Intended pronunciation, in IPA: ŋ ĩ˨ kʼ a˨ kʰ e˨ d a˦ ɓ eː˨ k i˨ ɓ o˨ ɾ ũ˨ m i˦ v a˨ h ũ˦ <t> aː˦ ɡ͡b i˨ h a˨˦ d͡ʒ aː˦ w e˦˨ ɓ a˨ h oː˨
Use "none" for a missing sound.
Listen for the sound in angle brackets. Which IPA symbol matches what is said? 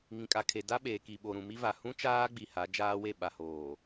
t͡ʃ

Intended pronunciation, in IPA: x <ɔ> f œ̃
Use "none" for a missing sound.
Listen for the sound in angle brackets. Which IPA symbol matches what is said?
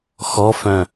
ɔ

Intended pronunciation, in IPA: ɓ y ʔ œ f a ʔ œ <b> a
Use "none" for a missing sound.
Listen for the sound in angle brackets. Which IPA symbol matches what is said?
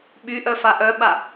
ɓ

